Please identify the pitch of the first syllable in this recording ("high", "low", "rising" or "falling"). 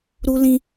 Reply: high